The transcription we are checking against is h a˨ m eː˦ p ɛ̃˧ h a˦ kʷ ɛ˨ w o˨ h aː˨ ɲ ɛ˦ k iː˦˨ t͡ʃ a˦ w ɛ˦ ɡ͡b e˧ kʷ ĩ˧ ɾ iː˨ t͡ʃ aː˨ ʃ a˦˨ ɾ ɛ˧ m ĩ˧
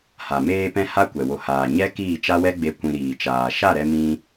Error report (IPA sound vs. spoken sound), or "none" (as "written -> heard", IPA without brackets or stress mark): eː˦ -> eː˧